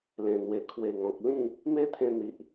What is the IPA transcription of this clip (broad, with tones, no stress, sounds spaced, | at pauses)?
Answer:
l ẽ˨˩ n̪ w e˨˩ kʰ w e˨˩ ŋ ɔ̃˨ k̚ l ĩ˥˧ | m e˦ t̪ʰ ẽ˧ n̪ i˨ ʔ